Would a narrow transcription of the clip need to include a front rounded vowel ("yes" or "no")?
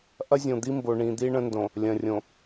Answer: no